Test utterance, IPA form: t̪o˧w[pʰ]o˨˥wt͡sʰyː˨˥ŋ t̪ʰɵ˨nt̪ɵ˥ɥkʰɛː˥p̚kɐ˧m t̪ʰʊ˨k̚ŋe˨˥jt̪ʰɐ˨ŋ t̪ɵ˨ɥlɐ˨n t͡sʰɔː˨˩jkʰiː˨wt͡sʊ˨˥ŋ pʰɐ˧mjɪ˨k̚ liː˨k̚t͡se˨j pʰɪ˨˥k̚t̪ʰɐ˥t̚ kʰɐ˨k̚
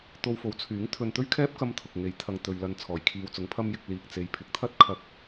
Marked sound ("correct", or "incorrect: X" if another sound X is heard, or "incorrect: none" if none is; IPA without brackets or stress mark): incorrect: f